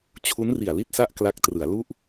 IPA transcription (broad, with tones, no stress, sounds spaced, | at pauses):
t͡ɕʰ u˦˥ n r i˨˩ a̯ l i˥˩ t̚ s a˥˩ ʔ k l a˦˥ k̚ t r ɯ˩˦ a̯ l u˥˩ ʔ